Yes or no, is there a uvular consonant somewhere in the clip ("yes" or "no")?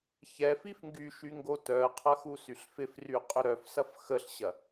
yes